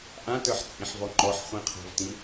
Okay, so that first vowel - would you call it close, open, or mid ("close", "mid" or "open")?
open